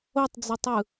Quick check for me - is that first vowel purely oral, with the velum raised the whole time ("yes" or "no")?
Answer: yes